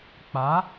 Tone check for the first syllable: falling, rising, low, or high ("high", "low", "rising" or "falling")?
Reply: rising